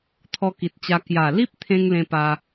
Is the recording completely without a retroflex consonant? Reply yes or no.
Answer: yes